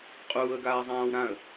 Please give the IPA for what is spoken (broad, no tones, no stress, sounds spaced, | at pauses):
qʼ uː ə̯ ɡ aː zˤ ãː w ɾ ã ə̯